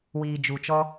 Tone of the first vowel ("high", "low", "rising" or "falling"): low